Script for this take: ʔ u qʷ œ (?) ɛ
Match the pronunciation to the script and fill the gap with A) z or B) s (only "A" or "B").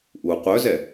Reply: A